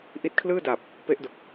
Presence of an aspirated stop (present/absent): present